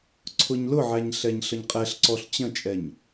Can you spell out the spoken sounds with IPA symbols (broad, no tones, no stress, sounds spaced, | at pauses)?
ǀʰ ʊ ɲ l ʊ ʕ æ ɲ ɬ ɛ ɲ ɬ ə ɲ qʼ ɛ ɬ ǀ ɔ ɬ t͡ɕ ə̃ t͡ʃʼ ɛ ɲ